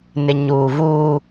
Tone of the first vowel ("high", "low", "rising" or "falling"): low